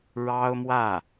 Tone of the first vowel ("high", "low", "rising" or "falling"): high